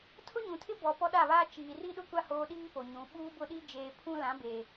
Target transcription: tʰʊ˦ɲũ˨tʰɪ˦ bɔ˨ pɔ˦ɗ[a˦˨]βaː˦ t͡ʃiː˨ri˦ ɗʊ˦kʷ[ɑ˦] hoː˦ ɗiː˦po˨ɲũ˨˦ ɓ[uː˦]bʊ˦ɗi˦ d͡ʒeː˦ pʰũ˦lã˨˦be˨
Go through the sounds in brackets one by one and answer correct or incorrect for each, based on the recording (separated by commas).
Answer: correct, incorrect, correct